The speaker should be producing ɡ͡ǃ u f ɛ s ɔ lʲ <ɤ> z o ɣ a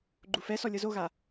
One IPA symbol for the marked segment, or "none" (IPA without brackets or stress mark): ɤ